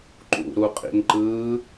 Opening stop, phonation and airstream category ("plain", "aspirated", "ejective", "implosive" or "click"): click